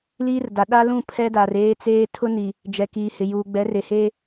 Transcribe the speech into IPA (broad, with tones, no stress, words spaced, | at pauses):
liː˦rda˨ ɗa˦lũ˦˨ pʰɛ˦da˨reː˦t͡seː˦ tʰʊ˦ni˨ | d͡ʒɛ˨kiː˨hɪ˨ juː˨ ɡ͡bɛ˨˦re˨heː˦